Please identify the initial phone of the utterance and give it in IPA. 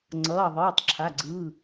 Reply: ŋ͡ǀ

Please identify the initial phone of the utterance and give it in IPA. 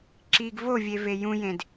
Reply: ǁ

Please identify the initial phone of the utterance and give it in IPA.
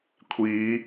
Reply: kʷʰ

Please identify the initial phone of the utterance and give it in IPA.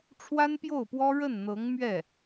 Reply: ʈ͡ʂʰ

